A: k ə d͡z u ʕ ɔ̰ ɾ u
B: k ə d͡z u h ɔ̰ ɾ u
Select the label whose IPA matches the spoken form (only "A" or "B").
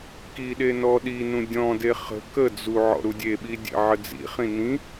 A